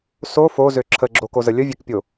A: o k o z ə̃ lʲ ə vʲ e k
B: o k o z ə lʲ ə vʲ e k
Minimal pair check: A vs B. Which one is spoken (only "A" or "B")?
B